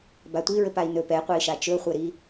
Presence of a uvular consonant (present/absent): present